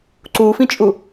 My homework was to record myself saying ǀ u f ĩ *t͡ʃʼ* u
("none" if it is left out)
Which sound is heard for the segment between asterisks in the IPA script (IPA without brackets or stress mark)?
t͡ʃʼ